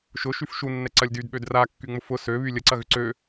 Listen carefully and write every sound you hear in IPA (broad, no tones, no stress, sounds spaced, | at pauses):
ʃ ʊ ʃ y f ʃ u nː ɛ ǀ ɐ lʲ d y d ɓ ø d r a kː y ŋ͡m ʊ f ʊ s ø β y lʲ ə ǀ ɐ ɣ ʏ ǀ ø